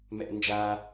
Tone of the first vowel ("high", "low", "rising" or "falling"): high